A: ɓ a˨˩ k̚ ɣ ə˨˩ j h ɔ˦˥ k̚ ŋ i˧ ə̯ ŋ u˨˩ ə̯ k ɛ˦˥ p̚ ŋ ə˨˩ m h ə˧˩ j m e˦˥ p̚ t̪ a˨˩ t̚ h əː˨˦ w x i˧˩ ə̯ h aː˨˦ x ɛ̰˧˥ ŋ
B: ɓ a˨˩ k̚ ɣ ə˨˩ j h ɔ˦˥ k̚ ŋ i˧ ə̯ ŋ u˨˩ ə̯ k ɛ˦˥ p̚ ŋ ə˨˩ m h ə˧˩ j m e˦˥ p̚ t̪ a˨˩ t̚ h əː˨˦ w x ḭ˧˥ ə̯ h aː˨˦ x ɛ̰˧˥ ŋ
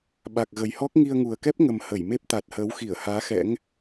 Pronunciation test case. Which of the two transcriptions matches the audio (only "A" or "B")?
A